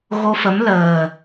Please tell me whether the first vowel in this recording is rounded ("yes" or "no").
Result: yes